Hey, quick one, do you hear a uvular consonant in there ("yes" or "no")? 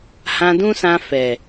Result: no